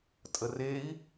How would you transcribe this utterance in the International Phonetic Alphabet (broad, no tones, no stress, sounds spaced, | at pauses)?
tʼ ə r e i̯